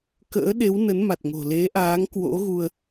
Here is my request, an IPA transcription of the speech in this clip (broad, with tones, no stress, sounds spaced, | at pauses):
k ə̰ː˧˥ ɗ e˨˦ w n ə˨˦ n m a˨˩ t̚ ŋ o̤˨˩ l e˨˦ ʔ aː˨˦ ŋ k w o̰˧˥ ɣ u˧ ə̯